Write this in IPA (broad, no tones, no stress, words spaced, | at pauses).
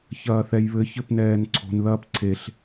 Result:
çɐːθɛjβɘ çɘpnɛːnǀʰo̤n ðɐːpǀʰeɬ